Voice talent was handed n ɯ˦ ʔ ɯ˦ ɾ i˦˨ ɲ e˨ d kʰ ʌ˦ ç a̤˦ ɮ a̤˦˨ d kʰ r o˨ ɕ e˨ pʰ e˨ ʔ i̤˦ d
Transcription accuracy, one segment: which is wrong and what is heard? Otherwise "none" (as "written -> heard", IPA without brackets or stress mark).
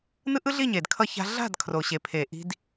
ɾ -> ɮ